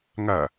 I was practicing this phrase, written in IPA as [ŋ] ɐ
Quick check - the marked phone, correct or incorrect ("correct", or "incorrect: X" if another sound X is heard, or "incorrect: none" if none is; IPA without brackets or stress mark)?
correct